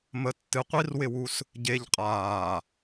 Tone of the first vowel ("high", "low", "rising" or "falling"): low